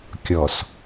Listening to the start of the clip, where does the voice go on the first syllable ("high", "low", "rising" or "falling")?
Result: low